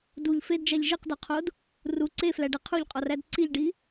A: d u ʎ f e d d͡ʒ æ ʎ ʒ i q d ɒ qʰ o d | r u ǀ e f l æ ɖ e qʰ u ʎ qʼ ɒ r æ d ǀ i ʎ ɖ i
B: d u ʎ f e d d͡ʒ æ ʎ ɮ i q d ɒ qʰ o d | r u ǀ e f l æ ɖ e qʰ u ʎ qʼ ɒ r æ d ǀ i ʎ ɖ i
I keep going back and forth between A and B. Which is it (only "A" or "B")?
A